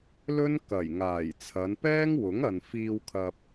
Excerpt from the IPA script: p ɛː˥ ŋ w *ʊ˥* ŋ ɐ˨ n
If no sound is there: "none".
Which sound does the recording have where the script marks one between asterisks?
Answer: ʊ˨˥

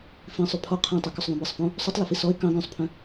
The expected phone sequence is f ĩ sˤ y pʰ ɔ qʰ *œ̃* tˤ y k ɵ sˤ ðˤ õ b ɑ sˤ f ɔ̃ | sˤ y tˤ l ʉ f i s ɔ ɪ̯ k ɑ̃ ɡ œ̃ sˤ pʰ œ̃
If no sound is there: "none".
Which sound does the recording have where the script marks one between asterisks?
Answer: œ̃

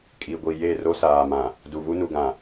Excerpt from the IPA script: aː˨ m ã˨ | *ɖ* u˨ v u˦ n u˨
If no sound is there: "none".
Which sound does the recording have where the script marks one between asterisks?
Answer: d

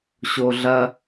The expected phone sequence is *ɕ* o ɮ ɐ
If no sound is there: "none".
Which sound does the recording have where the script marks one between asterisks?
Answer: ɕ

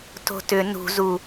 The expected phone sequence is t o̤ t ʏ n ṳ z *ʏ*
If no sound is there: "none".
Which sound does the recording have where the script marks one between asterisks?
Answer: u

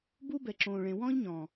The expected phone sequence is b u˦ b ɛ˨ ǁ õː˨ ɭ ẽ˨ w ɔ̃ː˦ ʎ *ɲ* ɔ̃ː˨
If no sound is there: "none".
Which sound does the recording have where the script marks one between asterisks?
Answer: ɲ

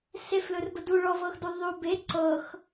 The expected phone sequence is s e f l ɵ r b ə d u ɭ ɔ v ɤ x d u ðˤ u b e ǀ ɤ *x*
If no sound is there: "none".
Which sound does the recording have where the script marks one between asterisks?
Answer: x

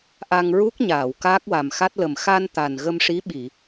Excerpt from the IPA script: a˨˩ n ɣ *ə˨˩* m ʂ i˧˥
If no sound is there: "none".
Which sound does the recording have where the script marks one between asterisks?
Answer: ə˧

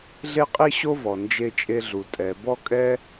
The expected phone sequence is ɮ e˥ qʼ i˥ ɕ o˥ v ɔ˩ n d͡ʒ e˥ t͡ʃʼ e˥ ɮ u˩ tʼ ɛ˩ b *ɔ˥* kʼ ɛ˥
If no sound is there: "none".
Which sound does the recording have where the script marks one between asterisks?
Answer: ɔ˥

